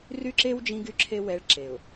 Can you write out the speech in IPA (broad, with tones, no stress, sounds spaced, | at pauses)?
r y˦ ǁ e˦ w d͡ʒ ĩ˦ ɡ y˦ ǁʰ e˦ w ɛ˦ ɭ ǁ e˨ ʊ̯